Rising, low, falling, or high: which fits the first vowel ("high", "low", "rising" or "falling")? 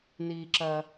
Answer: high